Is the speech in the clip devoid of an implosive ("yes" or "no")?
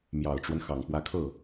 yes